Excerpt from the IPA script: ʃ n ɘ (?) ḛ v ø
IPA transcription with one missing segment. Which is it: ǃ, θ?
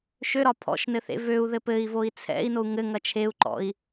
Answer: θ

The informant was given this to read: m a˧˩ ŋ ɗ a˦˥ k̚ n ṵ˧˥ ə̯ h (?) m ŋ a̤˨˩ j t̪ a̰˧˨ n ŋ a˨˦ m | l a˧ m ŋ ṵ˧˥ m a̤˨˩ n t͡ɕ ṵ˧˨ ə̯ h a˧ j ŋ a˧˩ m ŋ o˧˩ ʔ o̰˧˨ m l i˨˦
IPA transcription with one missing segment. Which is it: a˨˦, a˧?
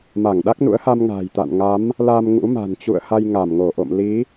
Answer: a˧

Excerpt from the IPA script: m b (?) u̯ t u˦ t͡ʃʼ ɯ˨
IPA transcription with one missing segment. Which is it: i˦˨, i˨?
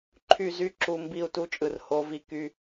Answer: i˦˨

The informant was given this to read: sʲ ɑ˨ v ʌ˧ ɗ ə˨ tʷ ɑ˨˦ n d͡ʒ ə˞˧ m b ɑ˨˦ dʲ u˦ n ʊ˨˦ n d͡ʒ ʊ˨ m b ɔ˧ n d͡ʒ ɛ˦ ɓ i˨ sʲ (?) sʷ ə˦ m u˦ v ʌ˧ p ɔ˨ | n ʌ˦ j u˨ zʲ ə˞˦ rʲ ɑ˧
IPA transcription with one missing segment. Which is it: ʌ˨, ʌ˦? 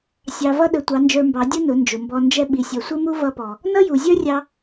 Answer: ʌ˨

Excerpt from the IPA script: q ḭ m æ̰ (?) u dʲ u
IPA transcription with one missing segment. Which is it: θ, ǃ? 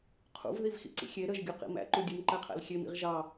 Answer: ǃ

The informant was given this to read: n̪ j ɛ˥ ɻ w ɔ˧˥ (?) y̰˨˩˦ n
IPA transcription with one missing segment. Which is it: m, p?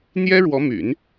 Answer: m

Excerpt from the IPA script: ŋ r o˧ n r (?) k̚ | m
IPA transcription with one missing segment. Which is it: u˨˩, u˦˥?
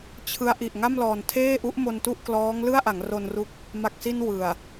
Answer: u˦˥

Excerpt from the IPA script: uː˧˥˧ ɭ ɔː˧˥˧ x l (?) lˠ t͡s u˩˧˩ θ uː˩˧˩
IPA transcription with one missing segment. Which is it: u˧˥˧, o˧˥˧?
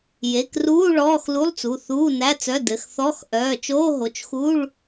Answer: u˧˥˧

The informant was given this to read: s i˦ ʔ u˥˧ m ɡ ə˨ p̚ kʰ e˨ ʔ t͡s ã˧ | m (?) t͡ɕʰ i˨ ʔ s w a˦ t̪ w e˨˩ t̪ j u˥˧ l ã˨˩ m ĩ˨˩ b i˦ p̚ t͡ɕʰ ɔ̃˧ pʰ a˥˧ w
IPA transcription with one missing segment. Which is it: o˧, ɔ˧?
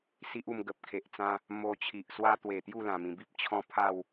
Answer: o˧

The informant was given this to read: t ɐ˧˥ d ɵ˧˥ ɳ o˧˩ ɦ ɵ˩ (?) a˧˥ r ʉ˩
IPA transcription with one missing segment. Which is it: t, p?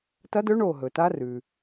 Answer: t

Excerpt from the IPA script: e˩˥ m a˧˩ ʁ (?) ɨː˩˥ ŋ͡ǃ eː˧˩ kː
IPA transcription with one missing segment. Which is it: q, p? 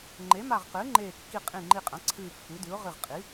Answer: q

